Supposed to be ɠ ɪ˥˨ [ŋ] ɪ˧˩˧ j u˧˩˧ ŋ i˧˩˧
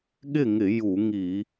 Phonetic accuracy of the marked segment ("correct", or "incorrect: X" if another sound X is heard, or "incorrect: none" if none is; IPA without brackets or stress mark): correct